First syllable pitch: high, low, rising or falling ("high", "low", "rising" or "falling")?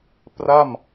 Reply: falling